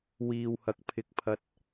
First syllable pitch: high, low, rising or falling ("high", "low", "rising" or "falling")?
low